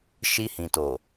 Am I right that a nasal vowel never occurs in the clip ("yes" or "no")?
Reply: no